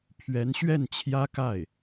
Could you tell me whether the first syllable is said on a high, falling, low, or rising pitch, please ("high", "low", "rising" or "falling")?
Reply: rising